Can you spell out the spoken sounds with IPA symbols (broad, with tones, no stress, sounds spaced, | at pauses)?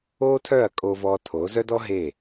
oː˦ tʰ œ˦˨ ɐ̯ kʼ o˧ v ɔː˧ tʰ o˨˦ z œ˦ d ɔ˦ ɦ e˦˨